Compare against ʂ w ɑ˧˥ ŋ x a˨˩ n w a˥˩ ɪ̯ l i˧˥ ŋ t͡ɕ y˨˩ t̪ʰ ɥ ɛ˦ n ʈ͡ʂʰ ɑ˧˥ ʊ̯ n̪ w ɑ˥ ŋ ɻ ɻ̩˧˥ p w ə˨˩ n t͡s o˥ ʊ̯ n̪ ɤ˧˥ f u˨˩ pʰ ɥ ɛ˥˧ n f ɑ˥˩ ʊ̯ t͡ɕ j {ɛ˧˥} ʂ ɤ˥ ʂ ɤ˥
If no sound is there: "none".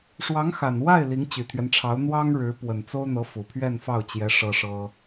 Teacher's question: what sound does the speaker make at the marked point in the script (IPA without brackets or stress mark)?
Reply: ɛ˧˥